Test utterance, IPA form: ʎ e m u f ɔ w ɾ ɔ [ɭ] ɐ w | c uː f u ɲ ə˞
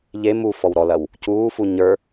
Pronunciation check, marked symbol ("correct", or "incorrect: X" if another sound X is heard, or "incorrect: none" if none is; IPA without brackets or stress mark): incorrect: l